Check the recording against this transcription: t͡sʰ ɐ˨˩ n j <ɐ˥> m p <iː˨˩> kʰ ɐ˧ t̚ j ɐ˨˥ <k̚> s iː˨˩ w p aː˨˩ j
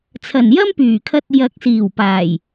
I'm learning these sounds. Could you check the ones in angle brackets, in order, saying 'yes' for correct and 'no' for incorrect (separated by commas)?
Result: yes, no, yes